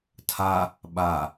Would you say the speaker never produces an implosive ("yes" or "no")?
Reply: no